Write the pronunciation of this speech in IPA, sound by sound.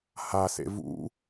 h a s ḛ v ṵ

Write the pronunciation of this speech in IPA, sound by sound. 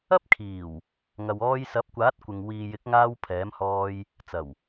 ɐ˥ p̚ kʰ iː˨˩ w | ŋ ɐ˨ w ɔː˧ j s ɐ˨˥ p̚ kʷ aː˨˥ t̚ kʷ ɪ˨ ŋ w iː˨ j ɪ˨˥ k̚ ŋ aː˧ w pʰ ɛː˨˥ m h ɔː˧ j | t͡s ɐ˨˩ w

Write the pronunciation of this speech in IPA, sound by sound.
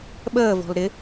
ɓ əː v ɔ̤ l ɾ ɪ

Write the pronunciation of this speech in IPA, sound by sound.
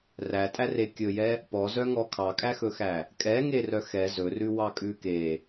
r æ tʼ æ r e kʲ ɵ j ɛ | p ɔ z œ ŋ ɔ kʰ ɑ kʼ æ x ɵ x æ | kʼ ɛ ŋ e r œ x ɛ z ɵ r ʉ w ɑ kʼ ʉ k e

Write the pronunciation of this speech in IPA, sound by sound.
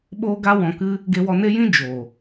ɓ oː˧ ɡ a˧ w ɔ̃˨ k ɨ˧ | ɡ e˧ w ɔ˧ n e˦ j ĩ˦ d͡ʒ oː˨

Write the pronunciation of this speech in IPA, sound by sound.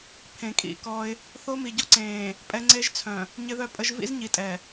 pʰ ẽ˨ kʼ ḭ˦˨ k ɔ˦ ɪ̯ | θ o˦ m i˨ ɟ ɔ˦ ǀ ẽː˨ | pʼ ɛ˦ ŋ͡ǀ e˦ ʒ t͡sʰ œ̃˨ | ɲ ɪ˦ ð œ˦ pʼ ə˦ ʒ v ḭ˦ z ɲ i˨ tʼ ɛ˨

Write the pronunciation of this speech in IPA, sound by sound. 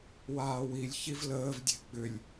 w aː w i lʲ ç i v l əː v dʲ e̤ ɡ͡b ʏ lʲ

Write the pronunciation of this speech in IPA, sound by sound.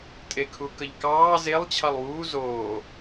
tʼ e kʰ u k ə ʎ k ɑː z e lˠ t͡ɕʰ ɑ lˠ w uː z oː

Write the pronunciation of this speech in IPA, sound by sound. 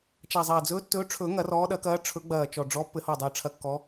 t͡ʃ a˨˩ zˤ ɐː˨˩ d͡z ɵː˨˦ tː ɵː˨˦ ʈ͡ʂʰ ɵː˨˩˦ ŋ ɐ˨˩˦ r ɔː˨˦ ɗ ɐ˨˩˦ k ɐː˨˦ ʈ͡ʂʰ ɵ˨˩˦ ɡ͡b ɐː˨˩ t͡ʃ ɔ˨˩ ɖ͡ʐ ɔ˨˦ pː ɘ˨˩˦ h ɔ˨˩ dˤ əː˨˩ ʈ͡ʂʰ ɐ˨˩˦ kː ɔ˨˦

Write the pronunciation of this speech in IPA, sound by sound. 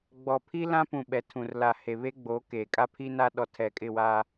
ɡ͡b ɔ˨ pʰ i˦ l ã˦ p ũ˨ ɓ ɛ˨ tʰ ũ˨ r l a˨ h e˨ β e˦ ɡ͡b o˨˦ k e˨ kʼ a˦ pʰ i˦ n a˦ ɗ ɔ˨ tʰ ɛ˨ kʼ ɪ˦˨ w a˦

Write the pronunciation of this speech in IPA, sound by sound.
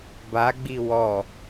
b a ɡ͡b i w ɔ

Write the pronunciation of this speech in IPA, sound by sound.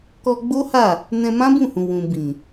k ɔ˧ ɡ͡b o˦ h a˦˨ | n ɛ̃˧ m ã˦ b ũ˦˨ h ũ˨ w ũ˨ b ĩ˨

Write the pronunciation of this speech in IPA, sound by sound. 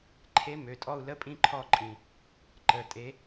ǃʰ e˧˥ m ø˩˧˩ tʼ ɔ˦˨ u̯ l ə˧˥ pʼ ĩ˦˨ ǃʰ ɔ˦˨ ǃʼ ĩ˩ | ǃ ə˩˧˩ tʼ e˧˥

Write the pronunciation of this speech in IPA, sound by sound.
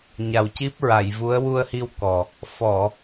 ɲ a˨˩ w c i˦˥ p̚ ɹ a˨˩˨ j v u˧˥ ə̯ w u˧ ə̯ h i˧ w k ɔ˨˩ | f ɔ˨˩˨

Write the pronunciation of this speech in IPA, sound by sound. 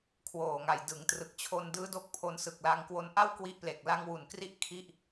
kʰ w oː˨˩ ŋ a˨˩ j d ɯ˩˦ ŋ t r ɯ˨˩ k̚ t͡ɕʰ o˧ n d ɯː˦˥ d o˦˥ k̚ pʰ o˧ n s ɯ˨˩ k̚ l a˧ ŋ k w o˧ n ʔ a˥˩ w k w i˦˥ ʔ p l e˨˩ k̚ l a˧ ŋ w u˨˩ n k r i˦˥ ʔ kʰ i˥˩ ʔ

